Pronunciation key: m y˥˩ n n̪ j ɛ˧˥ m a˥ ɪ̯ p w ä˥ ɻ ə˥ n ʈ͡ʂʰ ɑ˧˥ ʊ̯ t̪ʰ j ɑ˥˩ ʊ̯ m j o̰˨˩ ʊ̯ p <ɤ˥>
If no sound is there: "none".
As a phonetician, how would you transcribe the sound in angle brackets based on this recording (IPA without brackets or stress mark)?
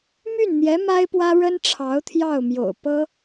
ɤ˥